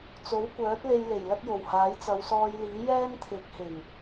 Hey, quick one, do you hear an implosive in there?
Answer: no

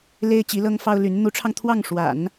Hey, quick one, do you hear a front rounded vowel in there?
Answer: yes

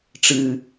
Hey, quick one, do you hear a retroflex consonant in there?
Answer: yes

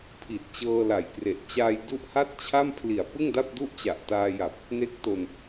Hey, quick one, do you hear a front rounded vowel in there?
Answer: no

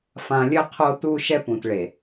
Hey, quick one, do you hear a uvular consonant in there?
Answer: yes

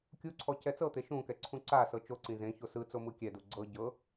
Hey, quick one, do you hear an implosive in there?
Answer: no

